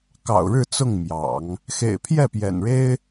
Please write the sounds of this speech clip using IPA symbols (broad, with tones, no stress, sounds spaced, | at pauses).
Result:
k ɑ̰˨˩ ʊ̯ ɻ ɻ̩˥˧ t͡s ʊ˥˩ ŋ m j ɑ̰˨˩˦ ŋ | x ḛ˨˩ ɪ̯ pʰ j ɛ˥˩ p j ɛ̰˨˩ n ɻ e˥ ɪ̯